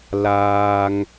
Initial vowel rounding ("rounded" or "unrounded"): unrounded